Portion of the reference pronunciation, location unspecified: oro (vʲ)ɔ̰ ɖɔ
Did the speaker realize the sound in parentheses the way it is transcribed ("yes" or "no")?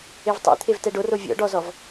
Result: yes